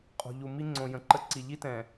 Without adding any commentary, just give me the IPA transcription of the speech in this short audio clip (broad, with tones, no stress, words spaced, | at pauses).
qʼo̤˨ʎu˨mi˦ ŋ͡ǀõ˨jə̃˨ǃə˦ǀi˨ ʎi˦tɛ̃˨